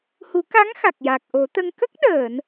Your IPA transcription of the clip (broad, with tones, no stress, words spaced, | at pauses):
hu˨˩˦ka˧˥ŋ xa˨˩k̚ja˨˩k̚ʔo˨˩˦t̪ə˧ŋ kə˦˥k̚ɗəː˨˩˨n